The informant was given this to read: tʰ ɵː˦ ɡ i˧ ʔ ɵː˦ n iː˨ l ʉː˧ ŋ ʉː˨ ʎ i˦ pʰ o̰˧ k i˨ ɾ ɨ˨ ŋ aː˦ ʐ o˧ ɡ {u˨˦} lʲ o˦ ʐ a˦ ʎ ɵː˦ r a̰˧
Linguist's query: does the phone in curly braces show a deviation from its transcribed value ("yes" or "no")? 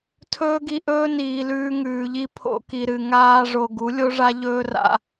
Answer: no